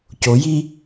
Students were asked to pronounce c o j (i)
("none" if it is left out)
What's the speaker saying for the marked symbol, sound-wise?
i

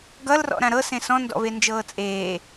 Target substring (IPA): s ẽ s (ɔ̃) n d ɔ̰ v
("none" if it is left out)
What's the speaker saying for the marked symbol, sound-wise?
ɔ̃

